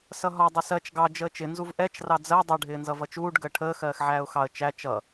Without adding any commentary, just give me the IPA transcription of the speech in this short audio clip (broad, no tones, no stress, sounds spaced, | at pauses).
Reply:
s ʌ ɦ ɒ dˤ ɪ s ɜ t͡ʃ ɡ ɑ d͡ʒ əː t͡ʃ ɪ n z u v ʔ ɛ t͡ʃ r ɑ d͡z ɜ dˤ ʌ ɖʱ ɪː n z ʌ v ʌ t͡ʃ uː ɖ ɡ əː ʈʰ əː x ɜː x ʕ æː ʊ̯ x ɑ ə̯ t͡ʃ æ t͡ʃ ʌ